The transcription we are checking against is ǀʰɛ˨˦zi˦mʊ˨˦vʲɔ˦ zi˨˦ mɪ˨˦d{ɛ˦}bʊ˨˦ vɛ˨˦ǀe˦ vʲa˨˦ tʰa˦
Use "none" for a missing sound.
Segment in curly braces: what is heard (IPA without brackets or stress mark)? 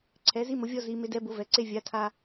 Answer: ɛ˨˦